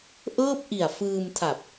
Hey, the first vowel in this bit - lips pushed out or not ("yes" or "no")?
no